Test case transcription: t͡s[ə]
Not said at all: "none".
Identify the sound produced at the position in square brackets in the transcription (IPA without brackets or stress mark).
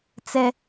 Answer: ɛ